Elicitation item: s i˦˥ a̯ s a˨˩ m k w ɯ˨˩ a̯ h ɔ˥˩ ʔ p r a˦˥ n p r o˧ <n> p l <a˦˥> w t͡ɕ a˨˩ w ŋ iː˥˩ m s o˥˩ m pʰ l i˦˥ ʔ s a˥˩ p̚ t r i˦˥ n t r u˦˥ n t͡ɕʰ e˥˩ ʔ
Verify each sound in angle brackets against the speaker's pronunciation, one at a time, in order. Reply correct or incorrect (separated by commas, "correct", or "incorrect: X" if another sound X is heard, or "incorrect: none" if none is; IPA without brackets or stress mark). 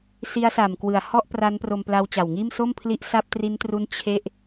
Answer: incorrect: m, correct